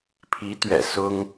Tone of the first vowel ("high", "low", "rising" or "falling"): rising